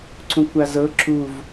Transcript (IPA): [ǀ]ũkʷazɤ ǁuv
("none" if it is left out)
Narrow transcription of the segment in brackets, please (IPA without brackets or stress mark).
ǀ